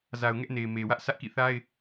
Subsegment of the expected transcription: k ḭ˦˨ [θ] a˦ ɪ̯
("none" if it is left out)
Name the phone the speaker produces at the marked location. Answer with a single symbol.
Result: θ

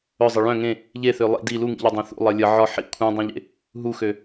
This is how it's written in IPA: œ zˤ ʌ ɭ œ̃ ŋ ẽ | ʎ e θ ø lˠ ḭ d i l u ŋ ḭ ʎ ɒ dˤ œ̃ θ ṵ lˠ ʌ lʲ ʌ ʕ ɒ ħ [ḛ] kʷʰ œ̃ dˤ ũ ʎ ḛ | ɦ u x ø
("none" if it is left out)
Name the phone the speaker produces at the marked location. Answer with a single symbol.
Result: ḭ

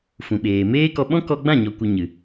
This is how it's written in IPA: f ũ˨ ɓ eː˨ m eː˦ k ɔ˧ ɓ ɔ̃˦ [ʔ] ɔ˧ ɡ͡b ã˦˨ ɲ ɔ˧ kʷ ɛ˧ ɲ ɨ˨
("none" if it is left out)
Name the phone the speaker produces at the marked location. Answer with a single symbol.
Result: k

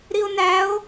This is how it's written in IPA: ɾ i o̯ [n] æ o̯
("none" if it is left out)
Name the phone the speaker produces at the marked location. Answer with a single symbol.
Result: n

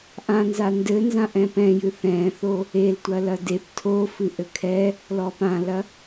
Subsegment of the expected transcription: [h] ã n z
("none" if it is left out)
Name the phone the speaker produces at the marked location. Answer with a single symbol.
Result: ʔ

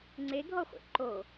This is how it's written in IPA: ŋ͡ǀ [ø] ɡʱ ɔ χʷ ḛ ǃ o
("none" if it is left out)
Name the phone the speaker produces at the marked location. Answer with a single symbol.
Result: e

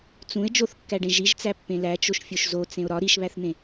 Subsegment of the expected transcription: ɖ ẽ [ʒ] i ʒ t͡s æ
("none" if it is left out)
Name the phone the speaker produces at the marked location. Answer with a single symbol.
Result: ʒ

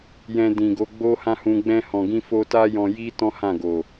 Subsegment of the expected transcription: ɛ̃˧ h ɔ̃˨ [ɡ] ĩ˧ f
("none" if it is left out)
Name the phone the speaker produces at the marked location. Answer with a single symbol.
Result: ɡ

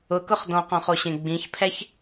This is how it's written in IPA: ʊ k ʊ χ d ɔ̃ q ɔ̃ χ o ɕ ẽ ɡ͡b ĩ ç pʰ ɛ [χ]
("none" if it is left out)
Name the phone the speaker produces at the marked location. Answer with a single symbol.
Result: ç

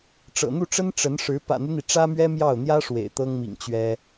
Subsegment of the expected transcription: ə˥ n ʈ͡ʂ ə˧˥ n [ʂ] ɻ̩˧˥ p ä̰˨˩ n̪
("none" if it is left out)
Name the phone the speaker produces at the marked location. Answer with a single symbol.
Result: ʂ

